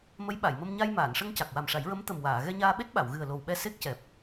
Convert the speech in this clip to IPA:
m ə˧˥ j ɓ a˨˩˨ j m ə˧ m ɲ a˧ j m aː˨˩˨ n ʂ ə˧ ŋ c a˨˩ k̚ w a˨˩ m ʂ a˨˩˦ j ɹ ə˧˥ m t̪ ə˨˩ m w aː˨˩˨ ɣ ɛ˧ ɲ aː˧ ɓ e˦˥ t̚ ɓ a˨˩˨ w ɣ ɨ˨˩ ə̯ l o˨˩ w ɓ ɛ˧ s e˦˥ k̚ c ɛ˨˩ p̚

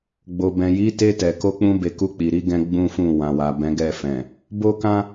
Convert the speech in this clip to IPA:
ɡ͡b o˨ b ɛ̃˨ j i˨˦ t e˧ t ɛ˨ k o˧ k͡p ũ˧ b e˨ k u˧ k͡p i˨ ɾ i˨˦ ɡ ɛ̃˦ ɡ͡b ũ˦ f ũ˦˨ w ã˨ w a˨ b ɛ̃˨˦ ɡ ɛ˦˨ f ɛ̃˨ | b o˦ k ã˦

